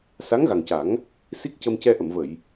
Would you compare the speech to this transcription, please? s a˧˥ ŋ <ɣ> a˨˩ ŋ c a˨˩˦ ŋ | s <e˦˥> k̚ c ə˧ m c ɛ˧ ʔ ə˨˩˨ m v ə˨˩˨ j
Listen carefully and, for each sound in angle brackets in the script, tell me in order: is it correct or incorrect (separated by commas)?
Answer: correct, incorrect